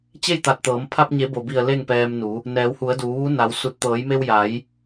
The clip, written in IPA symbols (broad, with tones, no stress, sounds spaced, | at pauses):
t͡ɕ e˥˨ j t̪ a˧˩ t̚ t̪ ɤː˩˧ m pʰ a˧ p̚ ɲ e˩˧ b o˩ b i˧˩ ə̯ l e˥˨ ŋ p ɛː˧ m n u˩˧ | n ɛː˩˧ w h u˩˧ ə̯ d uː˩˧ ʋ u˧˥ n a˩˧ w s u˧˩ t̚ t̪ ɤː˩˧ j m e˧ w j a˩˧ j